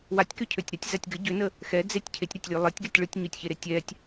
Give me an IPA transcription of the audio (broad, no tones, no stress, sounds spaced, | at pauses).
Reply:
w a tʲ k ø cʰ ø tʲ ɾ a tʲ z a tʲ ɡ ə ɟ ø n ə | x ɛ d͡z e tʲ cʰ e tʲ ɾ a tʲ lʲ ø lˠ e tʲ ɡ ɛ tʲ ɭ ɯ tʲ ɲ ø tʲ ç e ɾ e tʲ ɛ tʲ